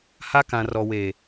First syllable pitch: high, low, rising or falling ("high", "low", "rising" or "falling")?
high